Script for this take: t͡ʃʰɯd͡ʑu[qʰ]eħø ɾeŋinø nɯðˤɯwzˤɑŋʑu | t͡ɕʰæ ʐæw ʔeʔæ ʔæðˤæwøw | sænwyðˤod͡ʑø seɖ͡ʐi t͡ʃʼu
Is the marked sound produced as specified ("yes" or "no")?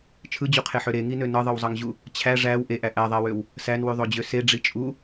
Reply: yes